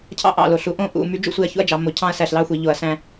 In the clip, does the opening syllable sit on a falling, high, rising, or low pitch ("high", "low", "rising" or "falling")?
high